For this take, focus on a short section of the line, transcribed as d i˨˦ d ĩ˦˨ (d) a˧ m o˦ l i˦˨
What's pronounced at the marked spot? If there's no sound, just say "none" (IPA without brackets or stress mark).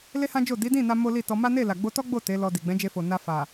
n